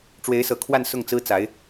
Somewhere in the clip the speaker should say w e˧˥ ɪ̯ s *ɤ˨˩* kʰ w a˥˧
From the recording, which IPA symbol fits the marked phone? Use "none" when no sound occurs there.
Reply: ɤ˨˩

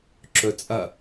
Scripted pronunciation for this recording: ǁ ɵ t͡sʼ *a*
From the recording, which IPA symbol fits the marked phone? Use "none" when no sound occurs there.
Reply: ɐ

